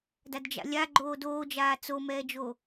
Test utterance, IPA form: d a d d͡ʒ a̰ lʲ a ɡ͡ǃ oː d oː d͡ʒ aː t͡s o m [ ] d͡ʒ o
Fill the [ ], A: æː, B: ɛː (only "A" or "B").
B